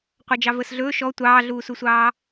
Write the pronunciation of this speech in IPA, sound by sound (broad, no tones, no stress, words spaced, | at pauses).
qʷɑd͡ʒɑvəːsɮɵː ʃɔ tʷɑːɮuːsusʷɑː